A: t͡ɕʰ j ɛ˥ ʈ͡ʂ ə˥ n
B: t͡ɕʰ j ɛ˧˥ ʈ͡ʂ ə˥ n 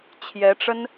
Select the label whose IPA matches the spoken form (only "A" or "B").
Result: B